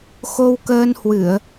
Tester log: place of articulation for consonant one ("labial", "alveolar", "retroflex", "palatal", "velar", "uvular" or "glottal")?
velar